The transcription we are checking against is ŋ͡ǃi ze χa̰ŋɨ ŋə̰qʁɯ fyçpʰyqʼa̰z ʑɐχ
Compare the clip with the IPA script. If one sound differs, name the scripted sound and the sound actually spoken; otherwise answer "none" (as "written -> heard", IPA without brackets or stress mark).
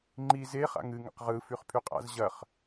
ç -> χ